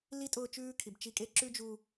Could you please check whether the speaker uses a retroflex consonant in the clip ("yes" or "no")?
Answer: no